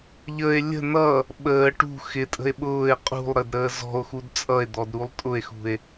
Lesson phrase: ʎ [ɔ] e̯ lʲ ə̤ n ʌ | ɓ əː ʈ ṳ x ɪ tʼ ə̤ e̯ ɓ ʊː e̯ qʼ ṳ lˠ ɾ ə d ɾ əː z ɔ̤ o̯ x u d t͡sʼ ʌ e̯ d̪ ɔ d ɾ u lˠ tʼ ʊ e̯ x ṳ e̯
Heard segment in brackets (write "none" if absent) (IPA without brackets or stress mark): ə